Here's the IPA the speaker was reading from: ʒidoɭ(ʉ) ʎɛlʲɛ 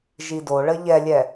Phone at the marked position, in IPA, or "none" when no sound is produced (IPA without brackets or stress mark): ə